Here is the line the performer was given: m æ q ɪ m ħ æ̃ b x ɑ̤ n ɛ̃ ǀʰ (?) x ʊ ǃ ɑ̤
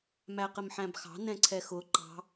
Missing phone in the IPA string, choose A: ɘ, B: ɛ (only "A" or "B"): B